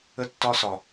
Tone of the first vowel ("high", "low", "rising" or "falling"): high